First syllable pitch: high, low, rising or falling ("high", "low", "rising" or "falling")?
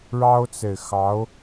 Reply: high